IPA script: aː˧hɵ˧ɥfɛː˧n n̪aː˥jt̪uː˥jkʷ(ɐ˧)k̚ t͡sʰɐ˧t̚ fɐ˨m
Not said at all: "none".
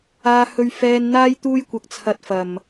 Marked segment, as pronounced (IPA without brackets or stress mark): ɐ˧